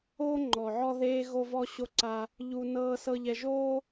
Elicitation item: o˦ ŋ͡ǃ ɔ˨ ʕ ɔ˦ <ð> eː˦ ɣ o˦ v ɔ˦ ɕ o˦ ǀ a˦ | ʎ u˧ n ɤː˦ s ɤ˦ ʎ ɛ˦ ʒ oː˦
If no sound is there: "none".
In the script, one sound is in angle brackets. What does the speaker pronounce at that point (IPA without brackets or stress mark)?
ð